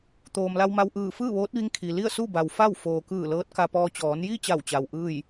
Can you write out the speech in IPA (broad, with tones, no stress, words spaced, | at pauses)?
t̪oː˩mla˧wma˧wʔɯː˧˩ fɯː˥˨ʋoː˧˥t̚ʋi˧˥ŋ kʰi˩ li˥˨ə̯su˥˨ba˩w fa˥˨w foː˩kɯː˧˩ lɤː˧˥t̚ka˧pɔː˧ t͡ɕɔː˩˧nji˥˨t͡ɕa˧˩wt͡ɕa˩w ʔɯː˥˨j